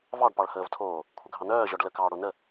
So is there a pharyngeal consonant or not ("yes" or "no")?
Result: no